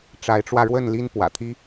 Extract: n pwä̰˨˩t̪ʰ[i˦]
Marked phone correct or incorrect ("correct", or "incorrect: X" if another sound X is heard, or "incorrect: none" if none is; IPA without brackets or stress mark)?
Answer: correct